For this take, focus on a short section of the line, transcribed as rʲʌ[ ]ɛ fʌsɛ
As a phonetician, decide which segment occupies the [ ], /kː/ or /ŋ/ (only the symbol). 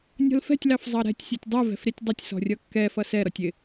kː